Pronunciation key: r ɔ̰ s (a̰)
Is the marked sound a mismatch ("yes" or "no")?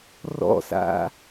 no